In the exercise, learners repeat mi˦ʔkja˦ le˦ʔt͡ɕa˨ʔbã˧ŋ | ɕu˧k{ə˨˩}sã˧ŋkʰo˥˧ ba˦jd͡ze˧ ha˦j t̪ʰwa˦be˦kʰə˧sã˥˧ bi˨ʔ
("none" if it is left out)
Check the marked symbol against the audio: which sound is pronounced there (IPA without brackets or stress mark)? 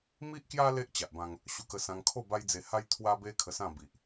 ə˧